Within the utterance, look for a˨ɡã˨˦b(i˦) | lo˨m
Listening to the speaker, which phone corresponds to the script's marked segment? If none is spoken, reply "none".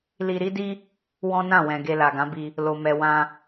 i˧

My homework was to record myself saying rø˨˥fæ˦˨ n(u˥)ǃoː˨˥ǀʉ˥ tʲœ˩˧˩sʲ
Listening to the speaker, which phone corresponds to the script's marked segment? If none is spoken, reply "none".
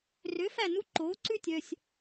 u˥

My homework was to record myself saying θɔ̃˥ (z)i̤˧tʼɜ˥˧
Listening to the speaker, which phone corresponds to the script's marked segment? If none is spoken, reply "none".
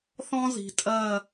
z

